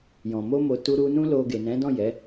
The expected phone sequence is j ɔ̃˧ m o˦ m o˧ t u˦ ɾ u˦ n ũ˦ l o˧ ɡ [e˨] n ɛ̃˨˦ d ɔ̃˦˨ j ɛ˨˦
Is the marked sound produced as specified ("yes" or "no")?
yes